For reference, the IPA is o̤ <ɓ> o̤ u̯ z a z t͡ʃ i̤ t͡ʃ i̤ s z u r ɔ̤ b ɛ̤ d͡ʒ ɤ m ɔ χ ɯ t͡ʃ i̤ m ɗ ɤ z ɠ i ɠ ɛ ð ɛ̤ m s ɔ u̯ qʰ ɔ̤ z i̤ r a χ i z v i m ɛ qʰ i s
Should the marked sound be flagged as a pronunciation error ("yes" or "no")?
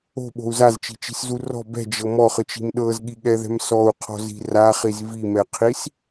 no